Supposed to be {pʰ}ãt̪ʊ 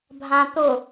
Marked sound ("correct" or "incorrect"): incorrect